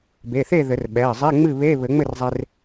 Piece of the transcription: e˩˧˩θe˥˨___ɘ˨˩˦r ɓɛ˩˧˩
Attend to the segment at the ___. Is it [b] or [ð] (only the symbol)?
ð